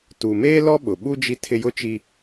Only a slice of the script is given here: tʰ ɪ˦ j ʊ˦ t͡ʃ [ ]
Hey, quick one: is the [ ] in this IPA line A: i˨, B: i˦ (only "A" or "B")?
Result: B